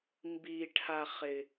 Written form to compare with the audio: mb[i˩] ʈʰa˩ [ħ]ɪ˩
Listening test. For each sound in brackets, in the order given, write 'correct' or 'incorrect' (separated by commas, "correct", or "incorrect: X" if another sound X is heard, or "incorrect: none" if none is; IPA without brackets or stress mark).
correct, incorrect: χ